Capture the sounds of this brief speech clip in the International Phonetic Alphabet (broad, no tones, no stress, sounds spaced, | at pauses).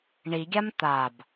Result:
ɳ i ɡʲ a m t̪ a b